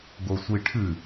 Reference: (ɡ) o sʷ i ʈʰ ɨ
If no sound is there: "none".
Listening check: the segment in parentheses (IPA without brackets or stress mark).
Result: ɡ